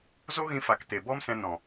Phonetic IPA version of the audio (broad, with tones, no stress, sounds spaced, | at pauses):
z o˦ ɣ ĩ˧ f a˨ k t e˨ b ɔ˦ m s ɛ̃˧ n ɔ̃˨